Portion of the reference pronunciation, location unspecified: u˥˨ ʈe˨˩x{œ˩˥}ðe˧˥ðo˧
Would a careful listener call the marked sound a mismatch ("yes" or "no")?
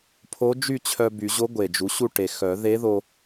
yes